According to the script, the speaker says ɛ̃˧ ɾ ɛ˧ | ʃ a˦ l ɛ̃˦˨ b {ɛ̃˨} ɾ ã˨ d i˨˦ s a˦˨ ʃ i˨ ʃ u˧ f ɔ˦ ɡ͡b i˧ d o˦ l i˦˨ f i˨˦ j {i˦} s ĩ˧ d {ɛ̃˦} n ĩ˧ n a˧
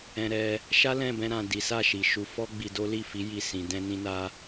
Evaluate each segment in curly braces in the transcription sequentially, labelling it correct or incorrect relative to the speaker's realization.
incorrect: ɛ̃˧, incorrect: i˦˨, incorrect: ɛ̃˧

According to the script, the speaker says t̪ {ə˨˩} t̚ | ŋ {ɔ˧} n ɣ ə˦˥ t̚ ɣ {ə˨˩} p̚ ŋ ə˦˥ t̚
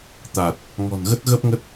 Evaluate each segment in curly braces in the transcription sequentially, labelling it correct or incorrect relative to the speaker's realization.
incorrect: a˨˩, incorrect: ɔ̤˨˩, incorrect: ə˦˥

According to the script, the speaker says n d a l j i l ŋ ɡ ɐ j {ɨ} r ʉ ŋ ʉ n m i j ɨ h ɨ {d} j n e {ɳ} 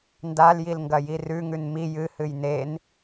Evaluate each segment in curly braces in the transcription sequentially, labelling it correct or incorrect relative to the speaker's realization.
incorrect: i, incorrect: none, incorrect: n

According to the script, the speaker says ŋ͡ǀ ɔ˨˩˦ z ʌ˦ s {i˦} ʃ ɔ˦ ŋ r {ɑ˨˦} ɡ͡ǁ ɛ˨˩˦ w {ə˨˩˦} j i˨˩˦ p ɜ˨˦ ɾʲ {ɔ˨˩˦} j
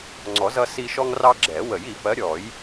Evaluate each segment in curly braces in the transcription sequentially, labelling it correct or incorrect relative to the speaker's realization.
correct, incorrect: ɑ˦, correct, correct

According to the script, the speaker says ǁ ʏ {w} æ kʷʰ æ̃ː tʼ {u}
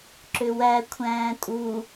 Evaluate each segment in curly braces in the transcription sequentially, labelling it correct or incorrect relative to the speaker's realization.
correct, correct

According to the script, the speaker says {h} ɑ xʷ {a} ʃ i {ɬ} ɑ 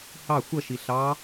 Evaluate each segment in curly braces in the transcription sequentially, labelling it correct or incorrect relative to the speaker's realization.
correct, incorrect: ʌ, correct

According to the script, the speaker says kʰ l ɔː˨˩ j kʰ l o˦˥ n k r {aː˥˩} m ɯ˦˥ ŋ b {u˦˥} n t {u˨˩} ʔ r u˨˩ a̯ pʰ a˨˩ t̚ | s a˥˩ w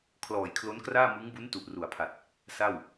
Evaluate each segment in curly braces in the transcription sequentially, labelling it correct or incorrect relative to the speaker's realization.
correct, correct, correct

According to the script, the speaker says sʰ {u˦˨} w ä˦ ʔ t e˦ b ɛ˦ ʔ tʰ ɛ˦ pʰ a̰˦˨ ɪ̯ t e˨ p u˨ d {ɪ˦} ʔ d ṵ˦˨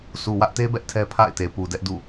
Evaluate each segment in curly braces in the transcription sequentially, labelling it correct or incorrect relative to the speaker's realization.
incorrect: u˨, incorrect: ɛ˦

